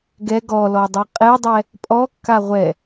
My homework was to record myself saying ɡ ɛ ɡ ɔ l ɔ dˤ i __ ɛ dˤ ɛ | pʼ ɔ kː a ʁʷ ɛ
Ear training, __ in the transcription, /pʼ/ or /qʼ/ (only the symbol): qʼ